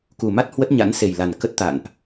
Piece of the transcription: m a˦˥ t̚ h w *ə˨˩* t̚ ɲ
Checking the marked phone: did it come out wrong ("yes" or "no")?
yes